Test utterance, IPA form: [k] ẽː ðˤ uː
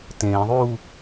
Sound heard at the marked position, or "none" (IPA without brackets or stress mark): t